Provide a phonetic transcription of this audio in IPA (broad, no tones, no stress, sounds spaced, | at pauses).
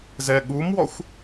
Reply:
z ɛ ɠ u m w ɔ xʷ